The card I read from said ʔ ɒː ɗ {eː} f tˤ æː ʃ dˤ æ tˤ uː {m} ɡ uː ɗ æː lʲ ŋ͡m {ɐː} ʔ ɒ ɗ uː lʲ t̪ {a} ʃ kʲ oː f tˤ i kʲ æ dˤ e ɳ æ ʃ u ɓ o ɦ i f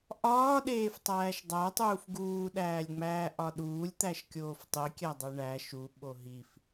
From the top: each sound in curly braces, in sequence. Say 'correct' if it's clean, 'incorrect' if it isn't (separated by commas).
correct, incorrect, incorrect, incorrect